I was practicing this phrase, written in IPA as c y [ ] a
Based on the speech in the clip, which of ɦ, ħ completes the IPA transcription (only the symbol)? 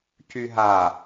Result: ɦ